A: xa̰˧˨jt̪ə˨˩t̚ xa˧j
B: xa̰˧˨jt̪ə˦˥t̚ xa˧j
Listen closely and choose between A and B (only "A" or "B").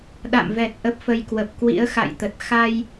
A